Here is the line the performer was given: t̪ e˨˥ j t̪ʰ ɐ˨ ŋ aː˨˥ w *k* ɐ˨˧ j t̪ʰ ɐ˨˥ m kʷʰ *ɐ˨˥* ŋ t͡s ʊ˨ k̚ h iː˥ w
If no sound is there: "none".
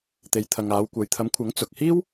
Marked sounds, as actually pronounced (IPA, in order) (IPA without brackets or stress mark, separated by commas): kʷ, ɐ˨˥